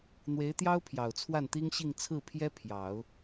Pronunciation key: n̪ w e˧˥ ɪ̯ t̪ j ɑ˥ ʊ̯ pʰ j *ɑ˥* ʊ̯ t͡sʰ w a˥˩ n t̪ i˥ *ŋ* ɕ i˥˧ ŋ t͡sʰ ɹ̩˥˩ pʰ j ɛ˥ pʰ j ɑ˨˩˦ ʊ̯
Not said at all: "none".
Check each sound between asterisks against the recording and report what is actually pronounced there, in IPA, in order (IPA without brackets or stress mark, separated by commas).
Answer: ɑ˨˩, ŋ